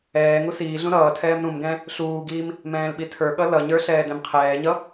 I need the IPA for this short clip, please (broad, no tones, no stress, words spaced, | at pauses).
ɛːŋu siːɮũ ɾʌːtʰɛːm ɾũmɡɛ̃ | ɬuːɡiːm | mɛ̃ːlɓitʰə˞ɠʌ lʌɲə˞ ɬɛːdɛ̃mqʰɛːɲʌ